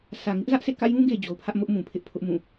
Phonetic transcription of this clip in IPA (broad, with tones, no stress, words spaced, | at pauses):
sä˨ŋɪ˦ʔzä˦ʔ sḛ˦˨kä̰˦˨jũ˦ɡe˨ d͡ʑo˨ʊ̯pʰä˦ʔmʊ˦ʔ mũ˨pʰɪ˦ʔ pʰʊ˦ʔmũ˦˨